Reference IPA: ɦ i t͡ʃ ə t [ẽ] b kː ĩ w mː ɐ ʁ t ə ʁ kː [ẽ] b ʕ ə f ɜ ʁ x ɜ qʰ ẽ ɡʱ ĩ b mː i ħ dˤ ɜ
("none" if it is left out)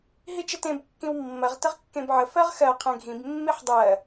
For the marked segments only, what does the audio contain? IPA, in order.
ẽ, ẽ

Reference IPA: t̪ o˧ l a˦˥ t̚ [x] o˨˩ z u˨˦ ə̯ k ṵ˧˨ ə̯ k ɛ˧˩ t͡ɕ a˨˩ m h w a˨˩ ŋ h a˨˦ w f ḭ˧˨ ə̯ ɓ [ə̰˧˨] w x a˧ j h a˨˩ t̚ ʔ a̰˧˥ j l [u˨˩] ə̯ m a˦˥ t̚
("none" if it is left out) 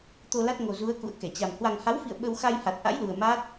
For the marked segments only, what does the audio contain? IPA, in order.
ŋ, ə˧, u˨˩

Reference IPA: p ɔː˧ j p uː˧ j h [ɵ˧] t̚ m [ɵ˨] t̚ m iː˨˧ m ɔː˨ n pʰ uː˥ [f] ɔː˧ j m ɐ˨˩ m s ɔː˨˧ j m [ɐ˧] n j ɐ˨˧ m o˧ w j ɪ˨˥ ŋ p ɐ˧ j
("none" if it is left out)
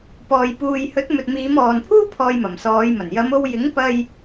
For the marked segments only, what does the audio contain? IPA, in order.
ɵ˨˥, ɵ˨, pʰ, ɐ˨˩

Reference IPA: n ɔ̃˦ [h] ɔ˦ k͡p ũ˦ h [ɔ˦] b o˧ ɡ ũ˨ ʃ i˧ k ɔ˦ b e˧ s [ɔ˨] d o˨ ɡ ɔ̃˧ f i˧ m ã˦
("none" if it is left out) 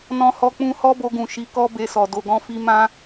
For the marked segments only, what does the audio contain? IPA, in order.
h, ɔ˦, ɔ˨

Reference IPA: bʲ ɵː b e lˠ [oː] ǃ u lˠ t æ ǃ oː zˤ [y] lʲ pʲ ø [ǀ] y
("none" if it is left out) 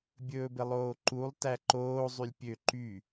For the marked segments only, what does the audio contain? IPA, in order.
oː, y, ǃ

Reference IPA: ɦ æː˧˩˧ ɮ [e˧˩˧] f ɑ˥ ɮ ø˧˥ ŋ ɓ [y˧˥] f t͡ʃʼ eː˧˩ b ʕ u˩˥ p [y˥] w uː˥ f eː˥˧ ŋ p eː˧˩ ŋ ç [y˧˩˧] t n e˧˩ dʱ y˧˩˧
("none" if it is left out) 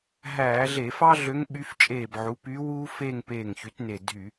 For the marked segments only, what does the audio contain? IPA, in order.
e˧˩˧, y˧˥, y˧˥, y˩˥

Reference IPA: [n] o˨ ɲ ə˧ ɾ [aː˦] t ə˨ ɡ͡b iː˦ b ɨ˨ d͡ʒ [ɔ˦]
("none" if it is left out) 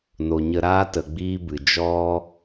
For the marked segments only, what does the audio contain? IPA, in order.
n, aː˦, ɔ˦

